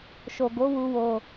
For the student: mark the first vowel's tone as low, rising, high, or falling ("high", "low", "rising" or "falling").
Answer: low